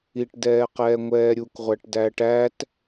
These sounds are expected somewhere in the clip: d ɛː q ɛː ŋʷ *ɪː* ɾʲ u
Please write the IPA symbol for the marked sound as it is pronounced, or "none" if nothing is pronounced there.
ɛː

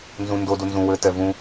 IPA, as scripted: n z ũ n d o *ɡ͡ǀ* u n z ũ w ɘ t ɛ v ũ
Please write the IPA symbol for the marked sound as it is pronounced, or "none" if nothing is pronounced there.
d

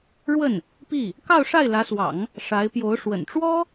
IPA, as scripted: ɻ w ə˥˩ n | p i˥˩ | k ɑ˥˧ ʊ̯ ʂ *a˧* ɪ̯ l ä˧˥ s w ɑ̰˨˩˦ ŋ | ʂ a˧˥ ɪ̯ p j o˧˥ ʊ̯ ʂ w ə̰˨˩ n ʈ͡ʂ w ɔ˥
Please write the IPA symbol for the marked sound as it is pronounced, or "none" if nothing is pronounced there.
a˥˩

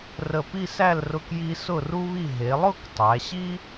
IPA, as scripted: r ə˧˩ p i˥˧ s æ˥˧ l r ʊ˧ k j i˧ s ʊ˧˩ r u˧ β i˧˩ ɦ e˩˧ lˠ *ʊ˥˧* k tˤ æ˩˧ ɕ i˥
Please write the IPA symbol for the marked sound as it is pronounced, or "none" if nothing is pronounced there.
ʊ˥˧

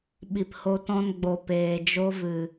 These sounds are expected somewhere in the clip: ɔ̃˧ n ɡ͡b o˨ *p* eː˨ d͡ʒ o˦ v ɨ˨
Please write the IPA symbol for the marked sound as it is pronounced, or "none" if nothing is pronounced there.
p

